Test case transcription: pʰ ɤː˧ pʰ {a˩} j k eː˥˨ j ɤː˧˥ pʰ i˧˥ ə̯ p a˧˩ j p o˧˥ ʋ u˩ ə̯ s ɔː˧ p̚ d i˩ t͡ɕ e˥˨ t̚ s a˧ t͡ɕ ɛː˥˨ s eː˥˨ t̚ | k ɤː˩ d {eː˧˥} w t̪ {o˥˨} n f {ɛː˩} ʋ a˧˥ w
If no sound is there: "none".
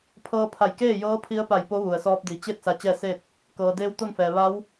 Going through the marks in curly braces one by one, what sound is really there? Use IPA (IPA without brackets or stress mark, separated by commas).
a˧˩, eː˧˥, o˥˨, ɛː˩